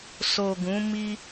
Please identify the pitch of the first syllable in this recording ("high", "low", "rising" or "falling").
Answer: low